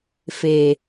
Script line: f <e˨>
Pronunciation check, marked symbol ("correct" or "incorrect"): correct